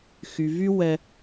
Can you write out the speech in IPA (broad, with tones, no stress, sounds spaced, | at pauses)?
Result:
x y˧ v y˥ w ɛ˥